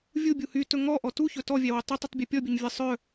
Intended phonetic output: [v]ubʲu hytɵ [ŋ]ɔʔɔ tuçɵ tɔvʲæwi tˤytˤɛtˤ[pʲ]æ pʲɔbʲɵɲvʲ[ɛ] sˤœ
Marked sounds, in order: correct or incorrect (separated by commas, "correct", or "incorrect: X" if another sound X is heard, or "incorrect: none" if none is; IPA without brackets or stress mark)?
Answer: incorrect: vʲ, correct, incorrect: bʲ, correct